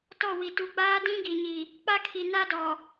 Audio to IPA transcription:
t ɔ˦˨ w i˨ t u˨ ɡ͡b aː˦ d ĩ˦ ɡ i˨ ɲ i˨ | k͡p a˦ kʰ i˨ n a˦ d ɔ˨

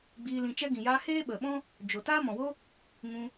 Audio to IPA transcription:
ɡ͡b iː˧ l ĩ˧ t͡ʃ ɛ˧ ɡ ĩ˨ j aː˧ h eː˦ ɓ ə˨ ɓ ɔ̃˦ | d͡ʒ o˨ t aː˦ m ɔ̃˨ w o˦ | ŋ ũ˧

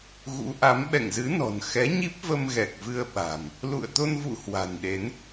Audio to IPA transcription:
ɣ ṵ˧˥ ʔ a˨˦ m ɓ ɛ̰˧˨ ŋ z ɨ˨˦ n ɔ̤˨˩ n x ɛ˨˦ ɲ i˦˥ p̚ v ə˧ m ɣ ɛ˨˩ k̚ v ɨ˧ ə̯ ɓ a̤˨˩ m | l ṵ˧˨ ə̯ t̪ o˧ n v ṵ˧˨ h w a̤˨˩ n ɗ e˨˦ n

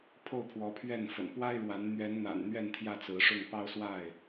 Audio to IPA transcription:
pʰ o˥˨ ʊ̯ pʰ w ɔ˨˦ pʰ ɥ ɛ˥˨ n f ə̰˨˩ n p w a˦ ɪ̯ ɻ w a˨˦ n n̪ ɥ ɛ˨˦ n n̪ a̰˨˩ n n̪ ɥ ɛ˥˨ n t̪ʰ j ä˥˨ t͡s ɹ̩˨˦ ʂ ʊ˥˨ ŋ p ɑ˦ ʊ̯ s w a˥˨ ɪ̯

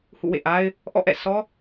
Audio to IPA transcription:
h ṵ˦˨ w ḛ˦˨ ʔ a˦ ɪ̯ | ʔ ɔ̰˦˨ ʔ ɛ̰˦˨ sʰ ɔ˦

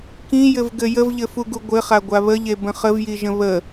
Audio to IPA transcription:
k ĩ j ɘ v ɡ ɘ j ə v ʎ ɘ f u ɡ u ɡʷ ɘ χ a ɡʷ a β ə ʎ e b ə̃ χ ə v j i ʒ ə̃ β ə

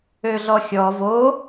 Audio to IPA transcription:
ø ɮ ɔ xʲ ɔ v o

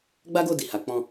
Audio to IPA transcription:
ɡ͡b a˦ ɡ o˦˨ d i˨ h a˨˦ k͡p ɔ̃˦˨

